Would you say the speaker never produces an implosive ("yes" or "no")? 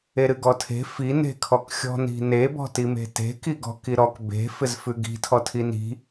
yes